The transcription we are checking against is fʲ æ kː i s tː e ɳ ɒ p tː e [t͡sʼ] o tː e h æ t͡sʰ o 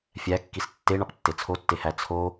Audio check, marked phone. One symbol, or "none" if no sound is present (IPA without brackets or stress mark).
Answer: t͡sʰ